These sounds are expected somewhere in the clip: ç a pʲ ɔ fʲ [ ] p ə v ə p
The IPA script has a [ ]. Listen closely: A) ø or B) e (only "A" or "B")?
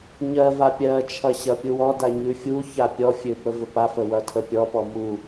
A